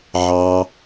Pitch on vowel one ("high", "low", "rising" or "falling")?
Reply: low